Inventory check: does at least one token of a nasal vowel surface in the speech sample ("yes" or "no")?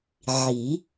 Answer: no